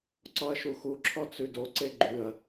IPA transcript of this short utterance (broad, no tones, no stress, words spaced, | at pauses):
ǀɔɐ̯ʃuxuǁʰɔ t͡sʉdoǀe ɡ͡ǃʉɐ̯